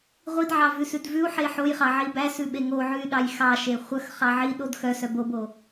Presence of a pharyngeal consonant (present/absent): present